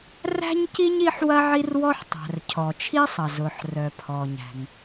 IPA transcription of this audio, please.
r æ̤˥ ɲ c i˥ ɲ i˥ ħ w ɐ˥ ʕ i˥ r w ɔ˥ ħ tˤ æ̤˩ r cʰ ɔ˩ t͡ʃʰ i˥ sˤ ɐ˩ z ʊ˩ ħ r œ˩ pʰ ɔ˩ ɲ æ̤˩ ŋ

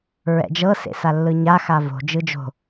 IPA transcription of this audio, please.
ɹ ɛ̰ d͡ʒ ɤ s ḛ s a lː ɯ ɲ a x a v o̤ d͡ʒ ɯ d͡ʒ o̤

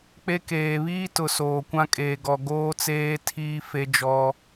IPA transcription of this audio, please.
k͡p e˦ k eː˨ β iː˦ t ʊ˨ s oː˨ kʷ ã˦ kʼ eː˨ ɡ ɔ˨ ɡ oː˦ t͡s eː˦ tʰ iː˦ f e˦ d͡ʒ ɔ˦

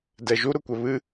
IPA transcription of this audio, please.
d ɛ ʒ u ɾ ʊ kʷ ɛ β ɨ

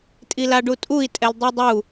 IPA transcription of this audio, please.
tʼ i l a ɖ u tʼ u i̯ tʼ ɛ l dˤ i dˤ u

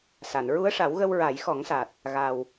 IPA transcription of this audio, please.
s a˨˩˨ n ɹ u˧˥ ə̯ ʂ a˨˩˦ w ɣ ə˧ w ɹ a˨˩˦ j x ɔ˨˩˦ ŋ s a˨˩ t̚ | ɣ a˨˩ w

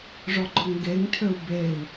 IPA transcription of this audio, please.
ʐ ɔ ɡ͡ǃ ɔ ŋ ɡ e ŋ tʰ ø u̯ b e i̯

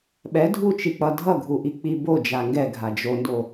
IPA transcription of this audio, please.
ɓ ɛ dʱ u t͡ʃ i k͡p ʌ dʱ ʌ ɡʱ u ʔ i k͡p i b o d͡ʒ a ŋ ɡ ɛ ɡʱ a d͡ʒ o n d o

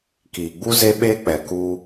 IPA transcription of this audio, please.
k iː˨ ɡ͡b u˦ z e˦ ɓ eː˦ k͡p ɛ˨ k u˦

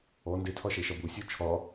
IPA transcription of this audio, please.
ɔ n d e tʰ ɒ ʃ e ʃ ɒ b u sʲ u t͡ʃʰ ɒ

